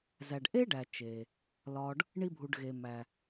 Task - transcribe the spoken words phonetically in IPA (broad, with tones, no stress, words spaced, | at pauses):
zæ˩ɖʔe˥ɖæ˩ t͡ʃe˩ | lɒ˨ɖ | ɳi˦bʱu˨ɖɣe˨ mæ˩